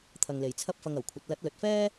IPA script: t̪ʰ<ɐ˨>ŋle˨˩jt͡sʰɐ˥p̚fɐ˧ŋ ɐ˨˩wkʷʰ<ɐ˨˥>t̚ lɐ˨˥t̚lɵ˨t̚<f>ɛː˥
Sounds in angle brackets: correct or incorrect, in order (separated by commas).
correct, correct, correct